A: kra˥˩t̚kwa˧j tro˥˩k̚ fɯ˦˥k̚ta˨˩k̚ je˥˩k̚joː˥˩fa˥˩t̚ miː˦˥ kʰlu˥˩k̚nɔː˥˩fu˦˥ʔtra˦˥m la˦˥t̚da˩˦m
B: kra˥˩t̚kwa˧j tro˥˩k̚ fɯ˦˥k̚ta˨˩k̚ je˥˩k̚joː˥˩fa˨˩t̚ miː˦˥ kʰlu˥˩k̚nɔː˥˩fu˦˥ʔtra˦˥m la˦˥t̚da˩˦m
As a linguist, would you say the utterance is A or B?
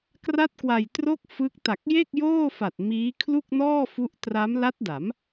B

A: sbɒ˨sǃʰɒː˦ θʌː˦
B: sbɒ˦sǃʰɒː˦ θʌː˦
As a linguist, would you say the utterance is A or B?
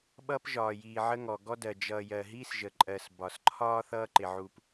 A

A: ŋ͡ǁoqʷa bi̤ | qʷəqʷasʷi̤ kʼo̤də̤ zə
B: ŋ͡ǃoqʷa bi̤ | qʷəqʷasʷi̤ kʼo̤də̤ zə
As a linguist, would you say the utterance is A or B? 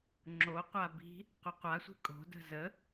A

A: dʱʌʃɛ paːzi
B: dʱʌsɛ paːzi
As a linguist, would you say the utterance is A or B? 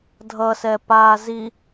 B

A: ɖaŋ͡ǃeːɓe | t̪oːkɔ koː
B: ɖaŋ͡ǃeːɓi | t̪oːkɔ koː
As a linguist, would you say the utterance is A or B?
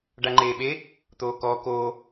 A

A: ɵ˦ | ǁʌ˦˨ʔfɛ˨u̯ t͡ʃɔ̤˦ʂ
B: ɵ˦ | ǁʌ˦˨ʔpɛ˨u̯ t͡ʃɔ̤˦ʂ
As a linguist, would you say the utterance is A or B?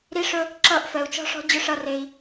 A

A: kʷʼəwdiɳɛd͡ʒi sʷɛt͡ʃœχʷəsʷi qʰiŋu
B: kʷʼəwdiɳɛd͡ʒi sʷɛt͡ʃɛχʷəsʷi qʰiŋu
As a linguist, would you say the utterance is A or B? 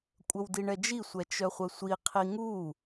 A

